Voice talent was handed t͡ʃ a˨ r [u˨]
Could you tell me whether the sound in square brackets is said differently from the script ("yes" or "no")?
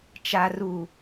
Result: no